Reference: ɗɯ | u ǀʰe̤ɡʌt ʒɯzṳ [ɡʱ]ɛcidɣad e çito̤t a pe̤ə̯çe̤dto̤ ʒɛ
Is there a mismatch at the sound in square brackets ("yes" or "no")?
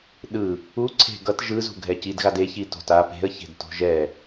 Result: no